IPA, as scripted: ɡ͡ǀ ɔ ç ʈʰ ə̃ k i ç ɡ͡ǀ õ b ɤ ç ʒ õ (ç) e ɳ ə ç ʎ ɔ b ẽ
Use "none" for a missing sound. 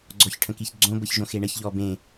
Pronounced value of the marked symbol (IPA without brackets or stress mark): x